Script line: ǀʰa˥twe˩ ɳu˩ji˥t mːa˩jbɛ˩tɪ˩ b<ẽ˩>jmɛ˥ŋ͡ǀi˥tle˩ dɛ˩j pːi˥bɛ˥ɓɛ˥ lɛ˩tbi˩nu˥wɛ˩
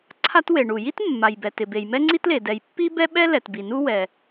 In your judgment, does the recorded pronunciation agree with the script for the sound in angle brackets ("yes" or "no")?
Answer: no